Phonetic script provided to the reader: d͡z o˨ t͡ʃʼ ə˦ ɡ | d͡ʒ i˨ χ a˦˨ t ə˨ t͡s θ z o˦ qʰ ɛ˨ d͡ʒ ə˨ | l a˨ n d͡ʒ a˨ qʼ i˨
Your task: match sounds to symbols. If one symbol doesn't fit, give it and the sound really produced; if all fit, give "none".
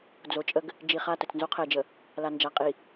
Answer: θ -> n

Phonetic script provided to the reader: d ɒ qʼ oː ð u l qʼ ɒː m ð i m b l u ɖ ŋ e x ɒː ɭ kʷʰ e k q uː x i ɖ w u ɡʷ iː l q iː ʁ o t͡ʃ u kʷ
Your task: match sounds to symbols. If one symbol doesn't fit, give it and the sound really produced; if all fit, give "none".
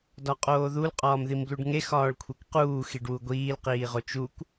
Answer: none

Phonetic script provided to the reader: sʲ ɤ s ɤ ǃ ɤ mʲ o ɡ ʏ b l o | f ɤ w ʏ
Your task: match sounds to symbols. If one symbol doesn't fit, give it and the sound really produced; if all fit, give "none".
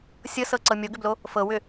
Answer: ǃ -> ǀ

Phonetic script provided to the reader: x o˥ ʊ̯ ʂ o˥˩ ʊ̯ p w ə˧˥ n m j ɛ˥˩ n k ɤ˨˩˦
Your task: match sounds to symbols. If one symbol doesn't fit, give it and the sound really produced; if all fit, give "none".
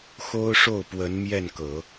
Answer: none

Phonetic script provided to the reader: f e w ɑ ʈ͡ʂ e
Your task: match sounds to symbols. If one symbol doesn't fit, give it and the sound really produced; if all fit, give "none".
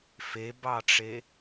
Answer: w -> b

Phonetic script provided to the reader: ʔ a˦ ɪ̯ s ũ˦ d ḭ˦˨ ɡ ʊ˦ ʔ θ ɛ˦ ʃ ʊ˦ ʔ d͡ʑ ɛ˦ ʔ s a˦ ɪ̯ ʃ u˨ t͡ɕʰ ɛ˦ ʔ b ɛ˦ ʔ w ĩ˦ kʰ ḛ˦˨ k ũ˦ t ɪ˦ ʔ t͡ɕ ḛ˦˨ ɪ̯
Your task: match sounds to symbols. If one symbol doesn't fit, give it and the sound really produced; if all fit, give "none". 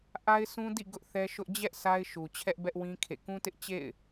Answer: none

